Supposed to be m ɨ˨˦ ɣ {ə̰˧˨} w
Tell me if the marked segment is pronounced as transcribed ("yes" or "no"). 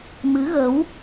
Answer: no